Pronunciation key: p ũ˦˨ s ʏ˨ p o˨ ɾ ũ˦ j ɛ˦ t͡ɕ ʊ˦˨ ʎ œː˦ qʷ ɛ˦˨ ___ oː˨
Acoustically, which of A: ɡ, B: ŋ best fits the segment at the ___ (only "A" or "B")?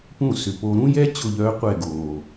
A